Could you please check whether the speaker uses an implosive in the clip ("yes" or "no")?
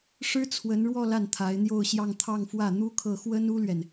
no